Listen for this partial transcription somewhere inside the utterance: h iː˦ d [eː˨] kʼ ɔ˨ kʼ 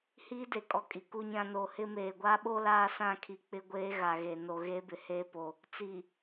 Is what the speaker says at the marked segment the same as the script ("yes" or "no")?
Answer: no